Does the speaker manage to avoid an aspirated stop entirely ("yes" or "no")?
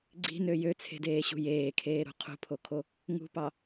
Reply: no